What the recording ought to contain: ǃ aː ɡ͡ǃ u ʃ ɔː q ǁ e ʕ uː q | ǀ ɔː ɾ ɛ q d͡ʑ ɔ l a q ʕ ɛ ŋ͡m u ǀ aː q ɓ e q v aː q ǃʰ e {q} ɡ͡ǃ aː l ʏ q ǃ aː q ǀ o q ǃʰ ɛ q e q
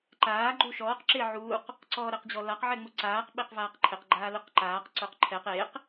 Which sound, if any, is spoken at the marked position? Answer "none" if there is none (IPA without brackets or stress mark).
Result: q